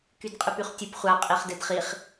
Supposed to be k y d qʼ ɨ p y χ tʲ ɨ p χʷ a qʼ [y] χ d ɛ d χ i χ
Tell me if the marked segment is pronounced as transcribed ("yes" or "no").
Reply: no